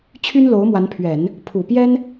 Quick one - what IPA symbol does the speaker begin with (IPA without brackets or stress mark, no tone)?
t͡ɕʰ